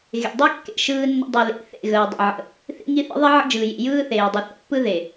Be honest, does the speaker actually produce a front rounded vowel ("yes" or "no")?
no